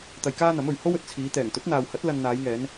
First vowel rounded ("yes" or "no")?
no